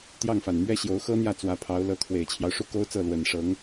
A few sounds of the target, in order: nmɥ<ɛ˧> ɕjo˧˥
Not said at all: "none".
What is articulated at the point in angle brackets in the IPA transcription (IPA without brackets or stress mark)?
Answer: ɛ˥